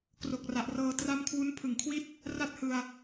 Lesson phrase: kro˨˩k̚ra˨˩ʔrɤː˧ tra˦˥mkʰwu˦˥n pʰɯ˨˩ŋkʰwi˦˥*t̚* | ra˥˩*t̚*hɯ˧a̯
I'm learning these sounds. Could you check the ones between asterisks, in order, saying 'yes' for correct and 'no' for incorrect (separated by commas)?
yes, yes